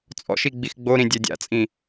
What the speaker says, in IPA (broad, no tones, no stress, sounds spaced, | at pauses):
t͡sʼ ɔ̰ ʃ i ɡ͡b i x ɡ͡b o ɾ ĩ dʲ ɛ dʲ a̰ t͡sʼ ĩ